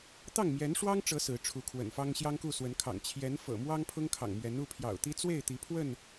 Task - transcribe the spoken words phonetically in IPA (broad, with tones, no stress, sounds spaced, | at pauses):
t̪ ɑ˥˨ ŋ m j ɛ˨˦ n ʂ w ɑ˦ ŋ ʈ͡ʂ ɤ˨˦ s ɹ̩˨˦ ʈ͡ʂʰ u˨˦ kʰ w ə̰˨˩ n f ɑ˦ ŋ ɕ j ɑ˦ ŋ k u˥˨ s w ə˨˦ n kʰ ɑ̰˨˩ ŋ t͡ɕʰ j ɛ˨˦ n f ɤ̰˨˩ m w ɑ˦ ŋ pʰ ʊ˦ ŋ kʰ ɑ̰˨˩ ŋ m ɥ ɛ˨˦ n u˥˨ pʰ j ɑ̰˨˩ ʊ̯ t̪ i˦ t͡s w e˥˨ ɪ̯ t̪ i˨˦ pʰ w ə˥˨ n